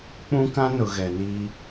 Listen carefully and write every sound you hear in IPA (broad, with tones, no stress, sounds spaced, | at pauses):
k͡p ũ˦ k ã˦ n ʊ˨ ɣ ɛ˨ n iː˦